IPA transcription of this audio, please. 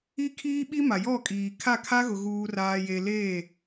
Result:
i˦kʰiː˦ɓi˦ ma˨jɔ˦˨kʼiː˨ kʰa˦˨kʰa˦ ɣʊ˨ɣuː˨raː˨je˨ leː˦˨

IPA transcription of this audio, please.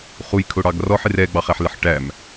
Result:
χujkʰʊ ɽɑɡrɔħ ɪrɛɡ͡bɑ χæħlɪħʈæm

